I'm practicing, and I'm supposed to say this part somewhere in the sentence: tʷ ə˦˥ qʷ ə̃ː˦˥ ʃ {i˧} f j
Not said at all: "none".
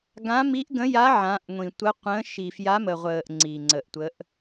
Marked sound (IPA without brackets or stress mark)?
i˧